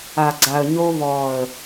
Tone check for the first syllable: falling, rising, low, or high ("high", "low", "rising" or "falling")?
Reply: low